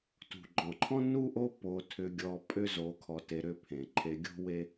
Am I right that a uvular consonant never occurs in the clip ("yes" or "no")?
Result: yes